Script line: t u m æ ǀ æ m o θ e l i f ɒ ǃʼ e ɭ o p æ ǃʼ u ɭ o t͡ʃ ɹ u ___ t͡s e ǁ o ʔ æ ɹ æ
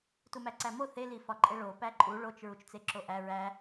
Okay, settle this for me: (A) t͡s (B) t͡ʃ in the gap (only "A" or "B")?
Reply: B